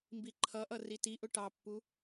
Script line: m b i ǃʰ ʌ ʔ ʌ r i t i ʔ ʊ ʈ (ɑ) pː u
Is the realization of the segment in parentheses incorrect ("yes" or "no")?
no